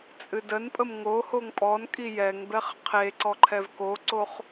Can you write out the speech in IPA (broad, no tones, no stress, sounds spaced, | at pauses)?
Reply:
t͡sʼ ɨ d ə n pʼ ə m ŋ o h o ŋ pʼ ɔ n kʼ i j ɛ ŋ b ɛ χ qʰ e ǀ ɔ ǃʰ ɛ v k o ǀ o χ